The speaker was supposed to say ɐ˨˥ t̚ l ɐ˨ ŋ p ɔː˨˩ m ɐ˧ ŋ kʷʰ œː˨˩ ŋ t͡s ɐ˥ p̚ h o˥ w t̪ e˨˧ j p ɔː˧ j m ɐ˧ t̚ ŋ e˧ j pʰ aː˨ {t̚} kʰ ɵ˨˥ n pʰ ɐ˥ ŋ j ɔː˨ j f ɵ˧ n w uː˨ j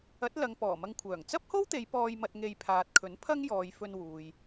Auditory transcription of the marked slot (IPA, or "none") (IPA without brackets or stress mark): t̚